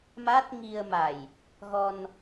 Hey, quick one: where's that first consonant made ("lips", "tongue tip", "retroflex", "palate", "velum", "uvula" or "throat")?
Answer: lips